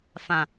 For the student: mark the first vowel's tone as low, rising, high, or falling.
low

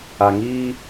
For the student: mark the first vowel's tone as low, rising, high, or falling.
low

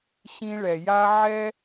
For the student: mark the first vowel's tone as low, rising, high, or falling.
high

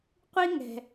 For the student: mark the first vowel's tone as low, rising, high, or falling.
high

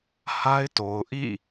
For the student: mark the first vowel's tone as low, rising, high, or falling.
high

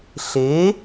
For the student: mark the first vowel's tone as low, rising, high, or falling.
rising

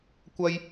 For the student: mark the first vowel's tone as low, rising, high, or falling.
high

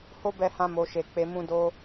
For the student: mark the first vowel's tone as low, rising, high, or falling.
high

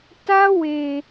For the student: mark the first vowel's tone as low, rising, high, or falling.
high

